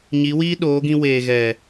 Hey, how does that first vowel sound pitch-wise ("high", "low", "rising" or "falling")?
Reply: rising